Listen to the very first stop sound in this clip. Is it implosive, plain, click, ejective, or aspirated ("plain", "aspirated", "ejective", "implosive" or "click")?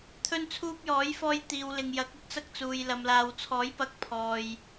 aspirated